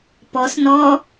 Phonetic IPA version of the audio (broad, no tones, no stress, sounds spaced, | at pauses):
p ɔ s n ɔ